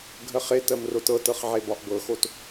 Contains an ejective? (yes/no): no